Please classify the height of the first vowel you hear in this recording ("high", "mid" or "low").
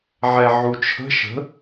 mid